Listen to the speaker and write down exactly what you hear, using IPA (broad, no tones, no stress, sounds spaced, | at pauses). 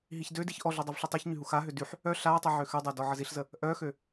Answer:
ɦ i ç d ø d i ç ʔ ɔ ɮ ø dˤ ɛ v ɬ i tˤ i ç ɲ y ɦ u x a ɦ ø d y ħ | œ ɬ a tˤ i ʕ ø x ø dˤ a d ɔ ʕ ə z i ɬ z ə | ʔ œ x ø